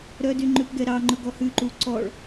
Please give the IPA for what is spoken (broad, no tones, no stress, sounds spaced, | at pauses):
ɾ œ d y ŋ͡ǃ ʉ p ɡ ɛ ɾ ɑ ŋ͡ǃ ɵ ɡ ɔ h ʉ ǃ u ǀ ɔ ɭ